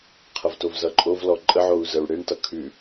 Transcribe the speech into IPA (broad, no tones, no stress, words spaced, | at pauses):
qʰʌvtovzʌǃʼov lɔǃʼəʕou̯ zəɹɽeɳtʌ kʰʉ